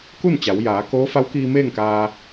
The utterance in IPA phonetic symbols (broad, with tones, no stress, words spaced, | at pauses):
ku˥˨nt͡ɕa˩˧wjaː˩˧ koː˧˥fa˧˥wkiː˧ meː˥˨ŋkaː˧